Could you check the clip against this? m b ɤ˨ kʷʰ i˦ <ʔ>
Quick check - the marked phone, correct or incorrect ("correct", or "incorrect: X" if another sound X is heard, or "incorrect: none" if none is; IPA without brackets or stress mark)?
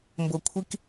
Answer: incorrect: k